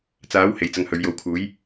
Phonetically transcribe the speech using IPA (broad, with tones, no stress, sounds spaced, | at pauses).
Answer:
t͡s aː˨˥ w h e˨˧ j t͡s ɐ˧ ŋ h ɵ˨˧ ɥ j o˨˥ w kʰ uː˨˥ j